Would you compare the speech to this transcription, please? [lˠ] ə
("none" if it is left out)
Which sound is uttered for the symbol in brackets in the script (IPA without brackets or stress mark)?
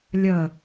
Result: lʲ